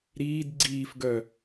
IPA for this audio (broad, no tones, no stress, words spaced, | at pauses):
ɾiːd ɡ͡ǀiːf ɡœ